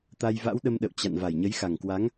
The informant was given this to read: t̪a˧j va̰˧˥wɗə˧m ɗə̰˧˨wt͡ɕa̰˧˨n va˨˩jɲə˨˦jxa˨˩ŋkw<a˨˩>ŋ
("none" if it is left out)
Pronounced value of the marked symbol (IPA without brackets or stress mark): a˨˦